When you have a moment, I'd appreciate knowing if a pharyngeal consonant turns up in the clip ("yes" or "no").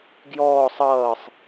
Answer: no